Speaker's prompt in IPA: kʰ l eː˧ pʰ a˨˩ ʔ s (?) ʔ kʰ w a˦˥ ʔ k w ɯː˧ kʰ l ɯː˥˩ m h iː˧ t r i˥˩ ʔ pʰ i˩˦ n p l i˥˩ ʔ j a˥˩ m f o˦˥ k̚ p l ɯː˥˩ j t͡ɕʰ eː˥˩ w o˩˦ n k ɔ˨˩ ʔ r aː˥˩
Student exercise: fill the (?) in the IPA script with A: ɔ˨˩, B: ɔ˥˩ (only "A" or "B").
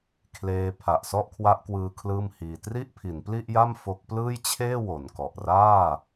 B